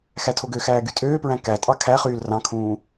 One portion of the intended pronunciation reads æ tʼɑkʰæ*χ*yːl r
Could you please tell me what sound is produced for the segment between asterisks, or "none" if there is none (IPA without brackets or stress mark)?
χ